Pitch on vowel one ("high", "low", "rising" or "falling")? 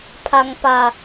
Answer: low